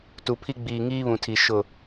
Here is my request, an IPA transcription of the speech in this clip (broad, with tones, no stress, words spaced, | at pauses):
tu˨pʰi˦ ɡ͡biː˨ŋiː˦βũ˨tʰi˨ ʃʊ˦˨